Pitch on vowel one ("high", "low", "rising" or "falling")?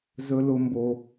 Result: high